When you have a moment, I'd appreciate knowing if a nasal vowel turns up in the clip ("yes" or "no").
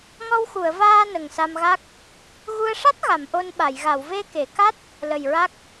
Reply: no